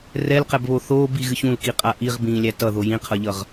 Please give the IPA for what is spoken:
r ɛ l q ɛ b β o θ oː b i ɣ ɨ ç ũ l k i qʼ a ʔ i ʁ b ĩː lʲ æ t ʌ ð o j ĩ qʰ ʌ ʎ ʌ ʁ

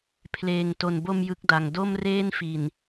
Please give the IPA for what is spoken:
pʰ l eː˨˩ ŋ t o˨˩ n b o˧ m j ɯ˦˥ k̚ d a˨˩ ŋ d o˥˩ m r eː˥˩ n f i˨˩ n

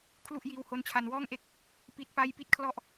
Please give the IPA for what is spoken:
kʰ l u˥˩ ʔ j iː˧ w h o˦˥ n t͡ɕʰ a˧ n w ɔː˥˩ ŋ ʔ e˥˩ k̚ | p i˦˥ t̚ p a˥˩ j p i˥˩ t̚ kʰ l ɔ˥˩ ʔ

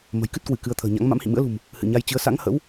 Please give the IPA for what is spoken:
m ə̤˨˩ j k ɨ˦˥ t̚ k w ɨ˧˩ k ɨ˨˦ ə̯ t̪ʰ ə̤ː˨˩ ɲ a̰˧˥ ŋ m a̰˧˥ m h ḭ˧˨ m ɨ̰˧˥ ə̯ l ṳ˨˩ m | h ɨ̰˧˨ ɲ a˧ j t͡ɕ ɨ˨˦ ə̯ s a̰˧˥ ŋ h ə̰˧˥ w

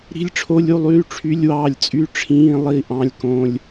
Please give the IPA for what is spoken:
ɾ i̤˧˥˧ lʲ ʈ͡ʂʰ o˧˥˧ lʲ u˧˥˧ lˠ yː˧˥˧ ʈ͡ʂʰ y˧˥˧ lʲ w ɑː˥˩ lʲ t͡sʼ y˧˥˧ ʈ͡ʂʰ ĩː˧˥˧ lˠ i˥˩ ʔ ɑ̃˧˥˧ lʲ k õ˧˥˧ lʲ

